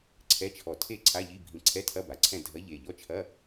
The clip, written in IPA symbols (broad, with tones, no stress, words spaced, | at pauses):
ǀʰɛ˧˥˧t͡ʃʰɔ˧˩ tʰe˥˨ǀʰa˧˥˧ʎi˧˥˧ bʱĩ˧˩ǀʰɛ˧˥˧tʰɐ˧˥˧ba˩˧˩ ǀʰɛ̃˥˨ dʱɐ˧˥˧ʎe˩˧˩ ʎɔ˧˥˧t͡ʃʰɐ˧˥˧